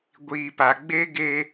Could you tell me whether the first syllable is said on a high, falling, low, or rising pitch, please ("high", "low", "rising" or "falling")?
low